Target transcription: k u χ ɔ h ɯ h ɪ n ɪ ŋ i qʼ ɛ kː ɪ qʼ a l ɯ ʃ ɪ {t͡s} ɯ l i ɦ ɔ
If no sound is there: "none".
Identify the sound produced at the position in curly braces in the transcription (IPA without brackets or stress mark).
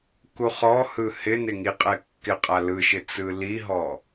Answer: t͡s